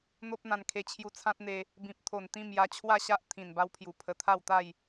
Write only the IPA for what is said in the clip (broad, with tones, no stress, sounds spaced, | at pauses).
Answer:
n̪ o˦ p̚ n̪ ã˧ n kʰ e˧ t͡ɕʰ j u˧ t͡sʰ ã˦ t̚ n̪ e˧ | b ĩ˨ p̚ t̪ʰ o˨˩ n t̪ ĩ˥˧ m j a˧ t͡ɕʰ w a˥˧ ɕ a˦ ʔ t̪ʰ ĩ˨˩ n b a˧ w pʰ j u˨˩ pʰ ə˧ t̪ʰ a˥˧ w t̪ a˥˧ j